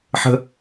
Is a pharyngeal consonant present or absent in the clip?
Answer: present